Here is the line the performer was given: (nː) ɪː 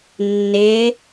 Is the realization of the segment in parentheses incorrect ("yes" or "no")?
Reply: no